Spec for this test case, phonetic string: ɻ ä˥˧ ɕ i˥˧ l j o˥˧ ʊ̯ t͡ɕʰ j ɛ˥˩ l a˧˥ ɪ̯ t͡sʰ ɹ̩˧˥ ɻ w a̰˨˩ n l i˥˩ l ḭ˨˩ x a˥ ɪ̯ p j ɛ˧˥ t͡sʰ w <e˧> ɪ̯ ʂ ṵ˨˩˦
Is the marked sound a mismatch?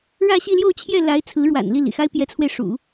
no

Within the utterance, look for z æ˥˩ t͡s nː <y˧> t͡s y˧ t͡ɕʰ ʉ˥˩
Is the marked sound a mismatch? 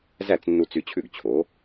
yes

